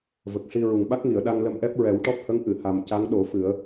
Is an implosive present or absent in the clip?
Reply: present